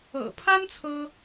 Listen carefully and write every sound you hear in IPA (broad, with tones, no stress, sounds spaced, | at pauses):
ɤ̰˨˩ pʰ a˥ n t͡sʰ ɤ˥